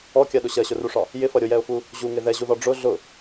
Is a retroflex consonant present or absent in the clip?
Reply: present